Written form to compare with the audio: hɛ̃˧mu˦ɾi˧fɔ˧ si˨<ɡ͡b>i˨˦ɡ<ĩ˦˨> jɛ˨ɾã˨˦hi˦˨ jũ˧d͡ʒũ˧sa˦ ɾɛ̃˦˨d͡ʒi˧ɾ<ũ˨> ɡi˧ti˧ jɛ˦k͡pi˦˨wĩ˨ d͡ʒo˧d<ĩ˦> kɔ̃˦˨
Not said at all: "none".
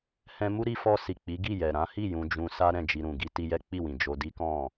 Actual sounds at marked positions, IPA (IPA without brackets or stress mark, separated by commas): k͡p, i˦˨, ũ˨, i˦